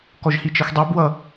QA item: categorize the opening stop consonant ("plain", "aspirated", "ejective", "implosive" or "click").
plain